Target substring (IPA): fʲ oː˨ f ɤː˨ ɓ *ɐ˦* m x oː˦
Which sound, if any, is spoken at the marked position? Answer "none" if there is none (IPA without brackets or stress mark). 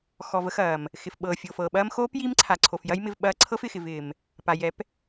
ɐː˦